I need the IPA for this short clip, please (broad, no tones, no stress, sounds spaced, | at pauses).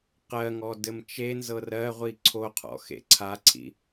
q ɜ ŋ ɔ d ɘ m t͡ʃ e n z ɤ r ɜ ʁʷ i ǀʰ o qʰ ɔ̰ x ḛ ǀʰ a ǀʰ ḭ